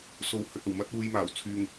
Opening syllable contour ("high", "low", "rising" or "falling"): rising